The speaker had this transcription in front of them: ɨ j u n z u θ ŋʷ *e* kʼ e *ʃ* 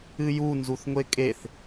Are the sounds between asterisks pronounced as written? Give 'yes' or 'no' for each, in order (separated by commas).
yes, no